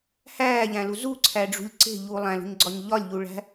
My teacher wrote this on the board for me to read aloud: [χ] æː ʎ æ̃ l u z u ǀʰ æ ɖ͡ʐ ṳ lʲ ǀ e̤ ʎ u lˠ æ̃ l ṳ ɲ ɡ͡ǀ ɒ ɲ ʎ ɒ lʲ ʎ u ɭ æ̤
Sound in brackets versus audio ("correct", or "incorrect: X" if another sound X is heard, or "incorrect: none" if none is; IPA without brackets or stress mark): incorrect: h